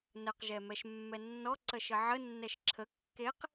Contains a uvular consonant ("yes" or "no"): yes